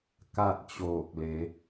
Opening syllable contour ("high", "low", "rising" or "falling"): falling